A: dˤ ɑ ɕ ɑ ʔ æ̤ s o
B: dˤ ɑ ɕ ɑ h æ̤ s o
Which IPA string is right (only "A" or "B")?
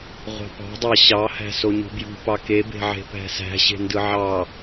B